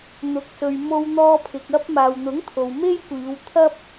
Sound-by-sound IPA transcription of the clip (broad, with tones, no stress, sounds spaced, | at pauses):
n̪ ʊ˨ k̚ s ɵ˨ ɥ m o˧ w n̪ ɔː˧ pʰ ɪ˨ k̚ ɐ˧ p̚ m aː˨ w n̪ ʊ˨˥ ŋ t̪ʰ o˨ w m e˥ j kʷ iː˨˧ w t̪ʰ ɐ˥ p̚